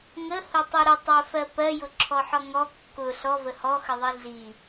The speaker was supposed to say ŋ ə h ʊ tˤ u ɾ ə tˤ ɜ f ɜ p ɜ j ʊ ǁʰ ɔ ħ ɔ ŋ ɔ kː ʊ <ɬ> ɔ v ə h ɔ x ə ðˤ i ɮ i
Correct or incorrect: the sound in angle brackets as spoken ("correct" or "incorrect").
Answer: correct